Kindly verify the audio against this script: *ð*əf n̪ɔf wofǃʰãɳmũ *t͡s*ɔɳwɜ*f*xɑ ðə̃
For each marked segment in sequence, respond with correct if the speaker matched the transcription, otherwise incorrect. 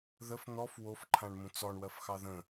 correct, correct, correct

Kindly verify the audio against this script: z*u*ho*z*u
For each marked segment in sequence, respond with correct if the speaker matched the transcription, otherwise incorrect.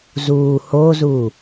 incorrect: uː, correct

